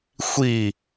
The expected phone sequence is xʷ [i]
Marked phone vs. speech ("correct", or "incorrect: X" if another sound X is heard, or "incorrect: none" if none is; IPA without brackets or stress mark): correct